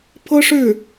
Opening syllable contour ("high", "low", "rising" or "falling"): high